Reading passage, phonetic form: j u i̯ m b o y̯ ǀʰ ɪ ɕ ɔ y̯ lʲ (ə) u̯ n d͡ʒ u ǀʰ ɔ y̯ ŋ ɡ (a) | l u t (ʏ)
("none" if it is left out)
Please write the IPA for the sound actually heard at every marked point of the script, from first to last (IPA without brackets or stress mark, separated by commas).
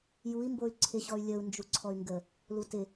ə, ə, ɪ